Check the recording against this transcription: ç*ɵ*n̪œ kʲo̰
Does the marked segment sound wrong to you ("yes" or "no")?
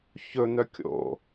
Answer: no